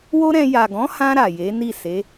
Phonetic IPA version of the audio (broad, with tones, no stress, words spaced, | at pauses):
wo˦ɾɛ̃˧ ja˨ɡɔ̃˨˦hã˧ ɾa˨je˨˦ ni˦˨se˨˦